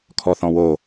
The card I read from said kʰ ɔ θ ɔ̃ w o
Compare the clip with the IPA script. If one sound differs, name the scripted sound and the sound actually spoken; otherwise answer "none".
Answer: none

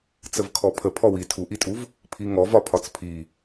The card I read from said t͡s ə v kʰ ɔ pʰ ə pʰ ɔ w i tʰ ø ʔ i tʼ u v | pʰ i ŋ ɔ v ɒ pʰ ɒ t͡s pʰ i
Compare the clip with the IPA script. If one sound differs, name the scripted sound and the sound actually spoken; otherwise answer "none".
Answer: ø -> u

